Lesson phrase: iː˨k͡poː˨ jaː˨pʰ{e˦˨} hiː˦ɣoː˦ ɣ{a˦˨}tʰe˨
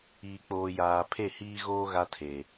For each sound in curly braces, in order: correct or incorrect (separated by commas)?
correct, incorrect